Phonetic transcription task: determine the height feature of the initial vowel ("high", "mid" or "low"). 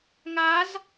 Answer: low